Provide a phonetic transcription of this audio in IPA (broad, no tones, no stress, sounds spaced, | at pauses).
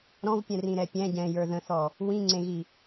ɾ ɔ̃ v pʲ ɛ̃ r ĩ ɾ ɛ pʲ ɛ̃ ɟ ɛ̃ j ə˞ ð ə̃ θ ɔ | w ĩ ŋ͡ǀ ẽ ɣ i